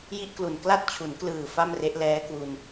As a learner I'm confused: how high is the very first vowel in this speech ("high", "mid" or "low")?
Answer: high